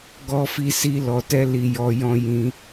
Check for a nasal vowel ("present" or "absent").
present